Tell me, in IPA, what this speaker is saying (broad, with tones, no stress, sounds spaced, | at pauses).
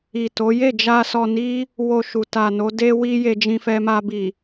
i˨ t o˨˦ j e˦˨ d͡ʒ a˧ s ɔ˧ n i˦ | w o˧ ʃ u˨ t a˨ n o˨˦ d e˦ w i˦ j e˧ d͡ʒ ĩ˧ f ɛ˧ m a˧ b i˨